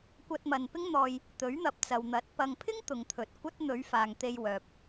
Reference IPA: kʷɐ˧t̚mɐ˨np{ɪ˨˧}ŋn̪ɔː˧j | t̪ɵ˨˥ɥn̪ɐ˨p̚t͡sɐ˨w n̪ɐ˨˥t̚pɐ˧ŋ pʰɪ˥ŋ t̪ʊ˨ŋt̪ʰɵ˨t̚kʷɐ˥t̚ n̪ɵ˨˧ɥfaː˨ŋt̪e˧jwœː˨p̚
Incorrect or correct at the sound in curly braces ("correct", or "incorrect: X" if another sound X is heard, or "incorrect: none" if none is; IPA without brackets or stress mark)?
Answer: incorrect: ɪ˥